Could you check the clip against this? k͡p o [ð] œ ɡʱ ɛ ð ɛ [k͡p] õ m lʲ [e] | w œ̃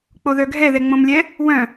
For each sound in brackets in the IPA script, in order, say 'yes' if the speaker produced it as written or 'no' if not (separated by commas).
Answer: yes, no, no